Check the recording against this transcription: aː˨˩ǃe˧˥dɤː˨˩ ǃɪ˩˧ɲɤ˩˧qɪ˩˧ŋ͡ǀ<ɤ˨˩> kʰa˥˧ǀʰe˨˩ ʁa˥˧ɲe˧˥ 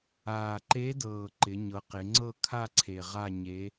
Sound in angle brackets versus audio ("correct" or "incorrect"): incorrect